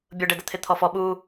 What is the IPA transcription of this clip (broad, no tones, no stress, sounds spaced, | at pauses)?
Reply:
bʲ ʊ ɖ ɛ d ə t̪ʰ ɪ t̪ʰ ɔ f ɔ ɓ u